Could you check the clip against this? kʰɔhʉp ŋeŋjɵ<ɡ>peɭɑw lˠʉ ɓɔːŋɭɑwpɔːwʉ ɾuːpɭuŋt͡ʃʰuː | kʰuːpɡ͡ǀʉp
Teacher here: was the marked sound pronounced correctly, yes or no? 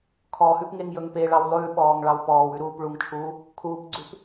no